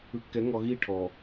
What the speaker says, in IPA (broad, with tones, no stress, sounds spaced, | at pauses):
ɯ˨ kː ɛ˨˦ ŋ ɔ˨ ɣ i˦˨ ʈʰ ɔ˨